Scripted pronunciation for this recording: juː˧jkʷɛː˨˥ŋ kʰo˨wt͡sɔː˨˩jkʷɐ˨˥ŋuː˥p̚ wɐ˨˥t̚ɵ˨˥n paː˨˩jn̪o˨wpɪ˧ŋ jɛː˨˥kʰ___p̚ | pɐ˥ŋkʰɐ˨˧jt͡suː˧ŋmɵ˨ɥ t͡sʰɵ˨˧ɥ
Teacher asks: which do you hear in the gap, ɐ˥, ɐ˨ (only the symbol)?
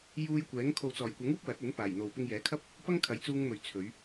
ɐ˥